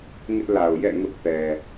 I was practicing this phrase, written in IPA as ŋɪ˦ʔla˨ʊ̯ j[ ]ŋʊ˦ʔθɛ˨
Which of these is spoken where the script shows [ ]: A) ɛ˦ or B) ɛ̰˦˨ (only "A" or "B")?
B